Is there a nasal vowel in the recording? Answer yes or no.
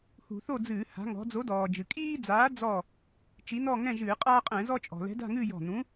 yes